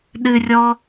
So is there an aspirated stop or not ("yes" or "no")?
no